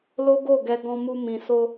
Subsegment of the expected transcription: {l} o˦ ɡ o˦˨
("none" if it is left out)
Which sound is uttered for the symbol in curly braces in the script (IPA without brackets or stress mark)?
l